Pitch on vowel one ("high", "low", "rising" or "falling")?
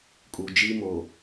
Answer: low